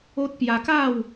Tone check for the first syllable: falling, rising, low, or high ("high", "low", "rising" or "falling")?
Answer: high